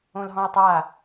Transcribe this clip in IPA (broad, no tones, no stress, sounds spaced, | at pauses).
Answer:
õ l ɦ ɔ̃ j tˤ a